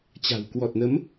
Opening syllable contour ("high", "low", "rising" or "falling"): low